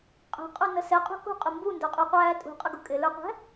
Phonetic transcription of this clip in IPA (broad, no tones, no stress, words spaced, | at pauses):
qʼɛ̤qʼunə sɛqʼṳ kṳqʼʊ mbundə˞qʼuqʷæː tʼṳqʼəɡu kʼɪlə˞qʷæ̤